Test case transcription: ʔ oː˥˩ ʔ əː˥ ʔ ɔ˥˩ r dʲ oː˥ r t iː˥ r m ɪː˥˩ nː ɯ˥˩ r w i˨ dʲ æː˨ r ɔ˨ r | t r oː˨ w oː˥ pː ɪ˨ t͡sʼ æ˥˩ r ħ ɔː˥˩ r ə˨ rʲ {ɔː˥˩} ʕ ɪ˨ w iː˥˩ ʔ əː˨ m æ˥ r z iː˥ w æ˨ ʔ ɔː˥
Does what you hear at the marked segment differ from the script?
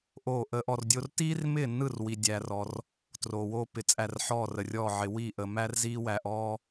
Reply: no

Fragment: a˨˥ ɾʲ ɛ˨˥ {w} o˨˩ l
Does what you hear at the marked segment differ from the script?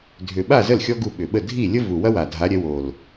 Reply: no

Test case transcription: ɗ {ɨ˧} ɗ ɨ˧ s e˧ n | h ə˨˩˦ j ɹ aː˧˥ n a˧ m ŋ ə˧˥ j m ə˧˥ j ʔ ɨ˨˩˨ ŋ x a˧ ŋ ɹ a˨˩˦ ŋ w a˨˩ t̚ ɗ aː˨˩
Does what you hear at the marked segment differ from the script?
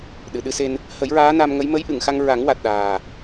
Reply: yes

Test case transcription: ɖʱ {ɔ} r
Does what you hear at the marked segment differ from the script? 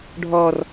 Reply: no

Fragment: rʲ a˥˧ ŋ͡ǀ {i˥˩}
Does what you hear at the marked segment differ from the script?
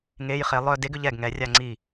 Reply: no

